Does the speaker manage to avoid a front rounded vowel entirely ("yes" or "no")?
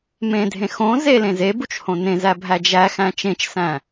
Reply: yes